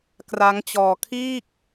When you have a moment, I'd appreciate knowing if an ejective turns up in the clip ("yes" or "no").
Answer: no